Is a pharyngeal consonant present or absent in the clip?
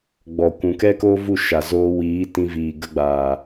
absent